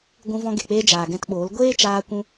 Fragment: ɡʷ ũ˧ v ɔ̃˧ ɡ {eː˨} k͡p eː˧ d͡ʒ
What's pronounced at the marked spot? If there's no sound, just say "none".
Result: e˨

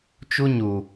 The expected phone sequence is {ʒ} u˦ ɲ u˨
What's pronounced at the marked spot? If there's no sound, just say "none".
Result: t͡ʃ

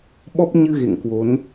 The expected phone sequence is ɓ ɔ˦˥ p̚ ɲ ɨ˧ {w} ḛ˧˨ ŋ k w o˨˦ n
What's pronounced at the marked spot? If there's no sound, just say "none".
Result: ɣ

